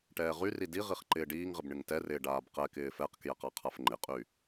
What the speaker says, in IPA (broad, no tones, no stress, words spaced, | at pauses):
ʈɛːʁyri diʁiχ ǃɪːɖiːŋʁɪb ɳɪŋtɛrɪː ɖaːbqɛkɪː fɛqkjɛq aqʰafŋ͡ǃɪqʼy